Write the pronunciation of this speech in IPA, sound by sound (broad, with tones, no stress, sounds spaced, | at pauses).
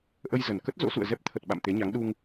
ʔ ə˧ j z ə˨˩ n k ə˦˥ t̚ z o̰˧˥ s ṵ˧˨ ə̯ z ɛ˦˥ p̚ t̪ʰ ə˨˩ t̚ ɓ a̰˧˨ m t̪ e˨˦ ɲ a˨˦ ŋ ɗ u˧ ŋ